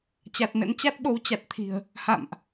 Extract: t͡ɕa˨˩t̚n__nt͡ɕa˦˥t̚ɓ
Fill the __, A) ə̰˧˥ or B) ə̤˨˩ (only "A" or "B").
A